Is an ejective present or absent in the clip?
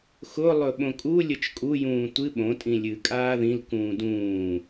present